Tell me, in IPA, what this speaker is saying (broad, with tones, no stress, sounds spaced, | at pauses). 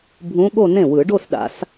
bʱ ũ˧˥ ɠ o˥˧ n ẽ˥˩ w ɯ˨˩˦ ɖ o˥˧ s ɗ a̰˨˩˦ s